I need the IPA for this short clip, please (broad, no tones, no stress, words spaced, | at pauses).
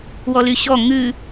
wɔlyɕɔ ŋʉ